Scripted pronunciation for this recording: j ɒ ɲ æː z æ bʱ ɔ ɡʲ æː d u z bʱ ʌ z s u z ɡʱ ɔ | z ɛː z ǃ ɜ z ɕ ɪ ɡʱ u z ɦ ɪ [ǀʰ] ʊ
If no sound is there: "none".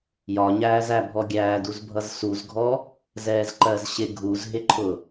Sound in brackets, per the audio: ǃʰ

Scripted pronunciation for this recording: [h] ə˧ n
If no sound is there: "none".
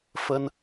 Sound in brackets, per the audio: f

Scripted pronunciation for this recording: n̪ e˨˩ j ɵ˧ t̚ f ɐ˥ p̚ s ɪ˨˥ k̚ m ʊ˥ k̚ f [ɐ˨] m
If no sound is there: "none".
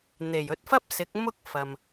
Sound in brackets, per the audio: ɐ˨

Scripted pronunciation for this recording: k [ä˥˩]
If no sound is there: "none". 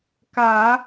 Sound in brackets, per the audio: ä˨˩˦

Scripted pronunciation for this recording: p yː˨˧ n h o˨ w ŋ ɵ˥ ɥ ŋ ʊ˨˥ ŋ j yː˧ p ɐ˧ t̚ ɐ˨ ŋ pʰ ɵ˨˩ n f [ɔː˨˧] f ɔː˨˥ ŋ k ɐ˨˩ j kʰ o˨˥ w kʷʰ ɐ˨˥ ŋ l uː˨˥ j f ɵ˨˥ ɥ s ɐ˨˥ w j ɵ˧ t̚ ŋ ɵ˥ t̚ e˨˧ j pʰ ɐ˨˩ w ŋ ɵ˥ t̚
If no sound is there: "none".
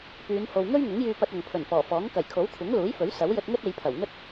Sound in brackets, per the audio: ɔː˨˩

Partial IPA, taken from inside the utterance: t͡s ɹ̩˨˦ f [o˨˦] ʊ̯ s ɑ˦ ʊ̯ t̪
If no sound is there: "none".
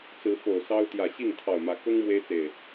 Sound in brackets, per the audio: o˨˩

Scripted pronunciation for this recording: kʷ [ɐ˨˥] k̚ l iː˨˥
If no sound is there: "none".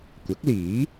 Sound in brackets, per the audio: ɐ˨˥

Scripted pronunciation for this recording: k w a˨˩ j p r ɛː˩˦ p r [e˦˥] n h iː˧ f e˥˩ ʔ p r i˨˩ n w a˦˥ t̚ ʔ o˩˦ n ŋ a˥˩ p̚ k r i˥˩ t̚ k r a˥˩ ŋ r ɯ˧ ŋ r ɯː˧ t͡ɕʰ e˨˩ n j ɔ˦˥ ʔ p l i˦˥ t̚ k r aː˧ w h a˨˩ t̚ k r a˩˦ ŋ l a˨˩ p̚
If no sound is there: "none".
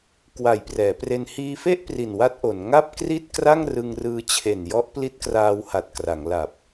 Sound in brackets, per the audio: e˧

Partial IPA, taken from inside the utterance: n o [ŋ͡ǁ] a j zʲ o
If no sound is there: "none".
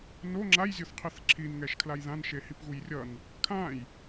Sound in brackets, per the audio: ŋ͡ǁ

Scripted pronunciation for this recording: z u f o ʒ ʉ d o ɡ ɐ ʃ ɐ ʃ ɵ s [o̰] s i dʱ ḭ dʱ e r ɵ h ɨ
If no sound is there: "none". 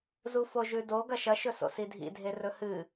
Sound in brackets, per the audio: o̰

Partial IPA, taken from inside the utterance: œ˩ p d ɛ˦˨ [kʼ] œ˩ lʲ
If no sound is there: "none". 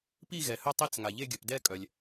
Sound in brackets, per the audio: kʼ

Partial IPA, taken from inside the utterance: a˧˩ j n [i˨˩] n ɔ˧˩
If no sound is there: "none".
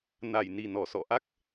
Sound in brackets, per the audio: i˨˩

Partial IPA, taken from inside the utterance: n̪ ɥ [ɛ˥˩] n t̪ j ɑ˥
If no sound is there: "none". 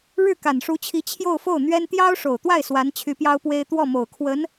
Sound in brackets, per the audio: ɛ˥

